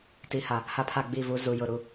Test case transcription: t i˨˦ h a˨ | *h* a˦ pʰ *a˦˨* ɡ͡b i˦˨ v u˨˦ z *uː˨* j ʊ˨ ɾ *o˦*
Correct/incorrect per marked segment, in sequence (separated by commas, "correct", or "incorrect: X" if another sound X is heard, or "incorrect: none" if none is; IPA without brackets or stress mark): correct, correct, incorrect: u˨, incorrect: u˦